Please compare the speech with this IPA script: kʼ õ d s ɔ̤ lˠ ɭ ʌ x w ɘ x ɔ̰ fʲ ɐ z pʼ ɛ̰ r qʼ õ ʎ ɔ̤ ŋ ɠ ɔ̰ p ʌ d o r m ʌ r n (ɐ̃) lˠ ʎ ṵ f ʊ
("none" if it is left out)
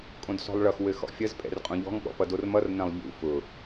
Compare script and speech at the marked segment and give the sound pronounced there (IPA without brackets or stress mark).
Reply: ɐ̃